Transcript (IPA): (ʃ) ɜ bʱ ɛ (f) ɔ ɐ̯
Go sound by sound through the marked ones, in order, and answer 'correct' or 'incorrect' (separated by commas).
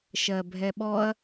correct, incorrect